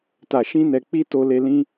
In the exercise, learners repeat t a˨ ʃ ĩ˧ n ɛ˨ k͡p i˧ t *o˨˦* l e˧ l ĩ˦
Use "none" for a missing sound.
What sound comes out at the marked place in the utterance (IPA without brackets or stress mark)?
o˧